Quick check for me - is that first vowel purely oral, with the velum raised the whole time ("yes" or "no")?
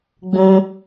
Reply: no